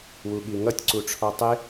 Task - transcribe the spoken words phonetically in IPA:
wuɠiŋʌtʲ ǀuʈ͡ʂʰɒtˤɪ

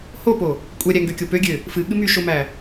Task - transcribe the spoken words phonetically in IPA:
hopo | kʷʼɛɾʲæŋɡøkʲo pøɡʲø | fɨɠɨ myʃomæ

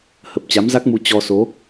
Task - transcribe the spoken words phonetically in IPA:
hə˨˩p̚t͡ɕa˨˦mza˦˥k̚mu˧ t͡ɕɔ˧so˨˦

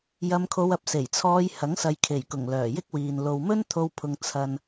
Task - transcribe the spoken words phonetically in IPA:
jɐ˧mkʰo˧wɐ˧p̚ se˨˩jt͡sʰɔː˧jhɐ˨˥ŋsɐ˨j kʰe˨˩jkʊ˨˩ŋ lœː˨˩jɪ˥k̚wiː˨n lo˨wmɵ˥nt̪ʰo˧w pʰʊ˨ŋ t͡sʰɐ˨n

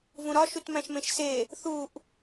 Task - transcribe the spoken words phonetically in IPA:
vũɾɒʃutmæ̃ʃ mẽʃse | θuʔ

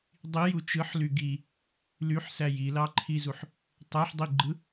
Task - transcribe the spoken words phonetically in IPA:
dˤiju t͡ʃɯħly ɡi | lyħsæ jilɑǃʰizuħ | tˤæħdˤiɡ͡ǃɯ

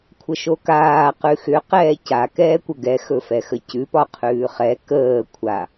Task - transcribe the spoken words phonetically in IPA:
kʷʰəʃokaː qʉxʏ qɛːca kɛːkʷəɡɛ xɵfɛxəcʉ pɒqʰʉːχɛ kəː kʷʰa

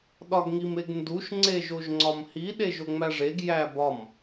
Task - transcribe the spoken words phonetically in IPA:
ɗɒɡŋimeɡnduʃ ŋ͡ǀeʒoʒŋ͡ǀɒmhi ɗeʒoŋ͡mæʐeɡ jæbɒm

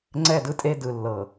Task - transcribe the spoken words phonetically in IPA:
ŋ͡ǀɛ˦˨ dɯ˦tʼe˦ dɯ˨ lːɤ˨

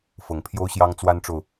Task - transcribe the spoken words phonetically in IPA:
fɤ˨˦ŋpʰjo˦ʊ̯ɕjɑ˦ŋ t͡swa˦nʈ͡ʂo˨ʊ̯

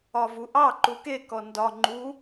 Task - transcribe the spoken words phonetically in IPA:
ɒvuʔɑ ǃuke kɔndɒ ŋ͡ǃu

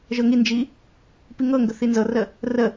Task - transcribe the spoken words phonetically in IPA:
ʒɤŋind͡ʒi | piŋɤŋɡə θinzɤrə | rə

